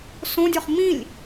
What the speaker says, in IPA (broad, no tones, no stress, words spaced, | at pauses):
sõdʲɔχ mĩlʲ